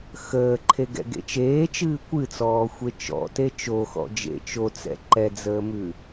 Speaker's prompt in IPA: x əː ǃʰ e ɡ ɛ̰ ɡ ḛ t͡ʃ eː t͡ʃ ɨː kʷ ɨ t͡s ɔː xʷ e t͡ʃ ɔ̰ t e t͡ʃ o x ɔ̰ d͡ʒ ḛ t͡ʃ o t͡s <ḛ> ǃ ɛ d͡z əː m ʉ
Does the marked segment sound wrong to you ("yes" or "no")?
yes